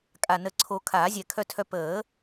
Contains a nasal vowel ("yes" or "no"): no